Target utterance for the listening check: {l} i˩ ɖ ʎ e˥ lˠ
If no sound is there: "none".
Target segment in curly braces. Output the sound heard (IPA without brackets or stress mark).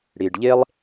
ɽ